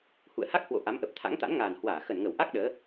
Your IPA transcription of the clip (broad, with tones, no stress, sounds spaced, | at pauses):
h ṵ˧˨ ə̯ h a˦˥ k̚ h w o̰˧˨ ʔ a˨˦ m ʔ ə˨˩ p̚ t̪ʰ a̰˧˥ ŋ t̪ a̰˧˥ n ŋ aː˨˩ n h w aː˧˩ x ə˧˩ n ŋ ə˧˩ w ʔ a˦˥ k̚ ɗ əː˨˦